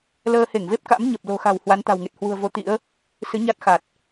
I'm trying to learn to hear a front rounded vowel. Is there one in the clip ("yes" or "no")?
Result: no